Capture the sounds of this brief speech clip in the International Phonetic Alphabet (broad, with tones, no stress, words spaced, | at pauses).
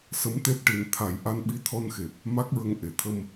sə˧˥mt̪e˦˥p̚ʈi˨˩n t̪ʰa˨˩˦jʔa˧nɓi˧ t̪ʰɔ˧nxe˨˩p̚ | ma˦˥k̚ɹə˧ŋ ʔe˨˩˨t̪ʰə˧m